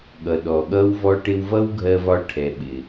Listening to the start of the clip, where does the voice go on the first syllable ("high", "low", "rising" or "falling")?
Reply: low